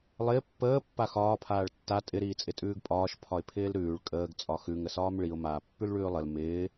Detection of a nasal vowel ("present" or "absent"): absent